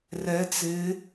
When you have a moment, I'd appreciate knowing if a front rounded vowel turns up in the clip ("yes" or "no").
no